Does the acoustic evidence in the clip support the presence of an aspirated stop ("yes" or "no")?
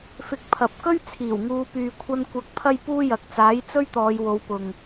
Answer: yes